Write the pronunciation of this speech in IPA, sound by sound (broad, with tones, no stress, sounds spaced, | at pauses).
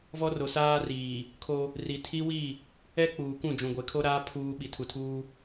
v ɔ˦ r o˨ s aː˦ r iː˨ | kʰ o˦ | r i˨ tʰ i˦ w i˦˨ | ɛ˦ k͡p uː˨ kʷ ũ˦˨ d͡ʒ ũ˨ ɡʷ e˨˦ kʰ o˦ ɾ aː˦ pʰ uː˦ ɓ i˨ tʰ u˨ tʰ uː˦